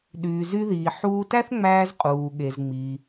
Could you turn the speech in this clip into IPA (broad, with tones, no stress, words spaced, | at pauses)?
ɗyː˩zy˧ðiː˩ ħuː˧tæ˥θŋ͡mæː˧z qʼuː˩ɠe˩zŋ͡mi˩